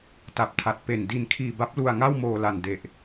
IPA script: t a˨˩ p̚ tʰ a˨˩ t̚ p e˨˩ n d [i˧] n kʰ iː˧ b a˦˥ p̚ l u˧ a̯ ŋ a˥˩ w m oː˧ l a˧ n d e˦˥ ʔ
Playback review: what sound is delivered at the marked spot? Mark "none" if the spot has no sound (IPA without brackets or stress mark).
i˧